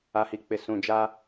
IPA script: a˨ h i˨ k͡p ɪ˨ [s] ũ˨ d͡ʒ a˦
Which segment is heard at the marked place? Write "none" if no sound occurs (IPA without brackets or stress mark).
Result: s